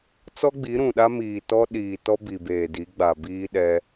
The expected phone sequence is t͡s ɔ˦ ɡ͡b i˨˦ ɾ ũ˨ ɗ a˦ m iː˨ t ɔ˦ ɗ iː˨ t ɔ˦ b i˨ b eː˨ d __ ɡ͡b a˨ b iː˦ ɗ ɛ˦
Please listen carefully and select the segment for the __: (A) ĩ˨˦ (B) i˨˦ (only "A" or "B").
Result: B